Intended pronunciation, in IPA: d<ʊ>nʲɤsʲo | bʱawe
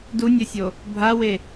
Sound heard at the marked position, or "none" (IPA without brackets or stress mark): u